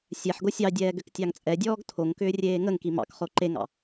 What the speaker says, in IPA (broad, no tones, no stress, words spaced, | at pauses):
sʲɛħɡo sʲɑdʲɛːɡ ʏktʲɑŋt͡sʼɛdʲɔːɡ tʰoŋkʏː rʲeːŋəŋki mɑ̰kχo ǃeŋɑ̰